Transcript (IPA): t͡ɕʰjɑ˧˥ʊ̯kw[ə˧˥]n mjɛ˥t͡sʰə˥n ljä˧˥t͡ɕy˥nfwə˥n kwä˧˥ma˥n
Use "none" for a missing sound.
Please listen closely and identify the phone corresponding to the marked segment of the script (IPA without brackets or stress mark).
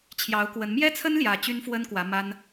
ə˧˥